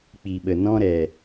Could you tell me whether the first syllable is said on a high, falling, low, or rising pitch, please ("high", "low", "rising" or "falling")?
low